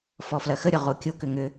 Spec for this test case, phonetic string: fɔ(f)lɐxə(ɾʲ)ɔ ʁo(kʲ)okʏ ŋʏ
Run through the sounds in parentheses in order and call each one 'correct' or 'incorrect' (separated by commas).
correct, correct, correct